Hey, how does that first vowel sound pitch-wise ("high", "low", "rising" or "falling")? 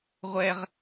high